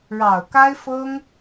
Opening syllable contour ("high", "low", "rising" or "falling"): low